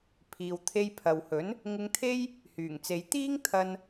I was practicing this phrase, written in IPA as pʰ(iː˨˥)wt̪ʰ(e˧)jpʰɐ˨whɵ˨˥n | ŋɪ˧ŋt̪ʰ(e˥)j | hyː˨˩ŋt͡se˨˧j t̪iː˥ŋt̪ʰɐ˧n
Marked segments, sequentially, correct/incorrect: incorrect, correct, correct

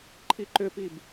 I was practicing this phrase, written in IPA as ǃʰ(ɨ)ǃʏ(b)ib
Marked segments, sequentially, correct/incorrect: incorrect, incorrect

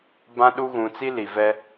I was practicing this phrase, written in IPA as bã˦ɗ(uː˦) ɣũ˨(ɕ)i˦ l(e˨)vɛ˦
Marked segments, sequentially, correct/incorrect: incorrect, incorrect, incorrect

